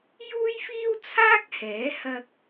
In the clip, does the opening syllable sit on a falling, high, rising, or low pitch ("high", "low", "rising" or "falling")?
high